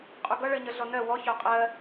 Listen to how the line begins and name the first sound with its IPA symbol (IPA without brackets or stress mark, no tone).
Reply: qʼ